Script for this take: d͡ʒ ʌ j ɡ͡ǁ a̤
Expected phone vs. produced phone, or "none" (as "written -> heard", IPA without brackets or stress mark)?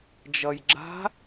none